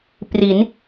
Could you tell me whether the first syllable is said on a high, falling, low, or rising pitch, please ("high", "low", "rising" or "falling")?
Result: rising